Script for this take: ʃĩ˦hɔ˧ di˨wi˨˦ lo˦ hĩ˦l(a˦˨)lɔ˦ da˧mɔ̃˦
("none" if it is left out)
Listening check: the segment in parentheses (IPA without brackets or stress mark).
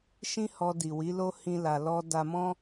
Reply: a˧